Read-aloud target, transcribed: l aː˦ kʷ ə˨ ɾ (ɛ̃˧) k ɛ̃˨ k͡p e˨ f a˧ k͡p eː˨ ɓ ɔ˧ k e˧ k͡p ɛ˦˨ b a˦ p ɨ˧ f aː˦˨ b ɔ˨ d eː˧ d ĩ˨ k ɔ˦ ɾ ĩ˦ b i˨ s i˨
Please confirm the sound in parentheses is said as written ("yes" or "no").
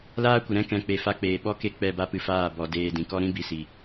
no